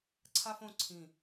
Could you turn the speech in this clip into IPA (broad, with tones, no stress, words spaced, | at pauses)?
ǀʰa˥fõ˥˧ ǀʰĩ˧˩